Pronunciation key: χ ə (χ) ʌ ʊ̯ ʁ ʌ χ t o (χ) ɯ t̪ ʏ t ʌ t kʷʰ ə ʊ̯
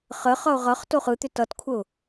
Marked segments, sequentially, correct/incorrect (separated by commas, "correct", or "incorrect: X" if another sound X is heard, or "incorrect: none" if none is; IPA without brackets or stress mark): correct, correct